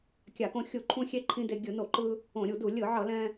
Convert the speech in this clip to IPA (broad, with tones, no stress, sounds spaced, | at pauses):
kʲ a˧˩˧ k õ˧ xʲ u˧˩˧ ǃʰ ũ˧ xʲ e˧ ǃʰ ĩ˧ d e˧ ɡʲ ɯ˧˩˧ n o˧˩˧ ǃ ɯ˧ | õ˧˩˧ ɾʲ u˧˩˧ d u˧˩˧ lʲ ɯ˧˩˧ ʕ ʌ˧˩˧ l ɛ̃˧